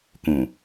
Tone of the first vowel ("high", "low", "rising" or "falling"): low